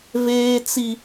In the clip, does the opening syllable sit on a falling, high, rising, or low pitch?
high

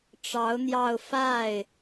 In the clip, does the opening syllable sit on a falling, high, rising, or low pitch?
rising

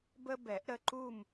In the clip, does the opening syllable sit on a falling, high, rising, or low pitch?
high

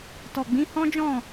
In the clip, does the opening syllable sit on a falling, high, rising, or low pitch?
low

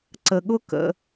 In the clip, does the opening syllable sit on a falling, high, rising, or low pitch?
low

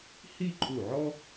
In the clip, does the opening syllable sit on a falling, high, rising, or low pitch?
falling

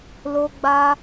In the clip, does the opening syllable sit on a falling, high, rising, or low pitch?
high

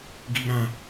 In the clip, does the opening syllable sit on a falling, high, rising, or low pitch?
high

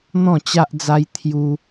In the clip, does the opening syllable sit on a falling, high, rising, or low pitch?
falling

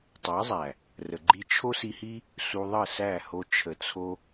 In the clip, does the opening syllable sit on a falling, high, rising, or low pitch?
rising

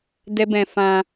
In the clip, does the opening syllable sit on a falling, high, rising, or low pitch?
high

